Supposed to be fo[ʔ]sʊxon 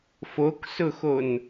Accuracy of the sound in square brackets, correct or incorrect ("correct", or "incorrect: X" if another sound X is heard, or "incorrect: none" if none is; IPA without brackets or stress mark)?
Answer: incorrect: k